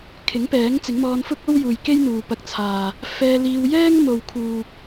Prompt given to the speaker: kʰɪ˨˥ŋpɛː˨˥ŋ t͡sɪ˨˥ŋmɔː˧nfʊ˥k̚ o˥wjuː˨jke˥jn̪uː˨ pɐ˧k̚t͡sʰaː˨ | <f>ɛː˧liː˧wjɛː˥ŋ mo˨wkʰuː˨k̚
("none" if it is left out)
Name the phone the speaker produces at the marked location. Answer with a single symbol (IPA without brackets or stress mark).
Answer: f